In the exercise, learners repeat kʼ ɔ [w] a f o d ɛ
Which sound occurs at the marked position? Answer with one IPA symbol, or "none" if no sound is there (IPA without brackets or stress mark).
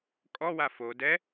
w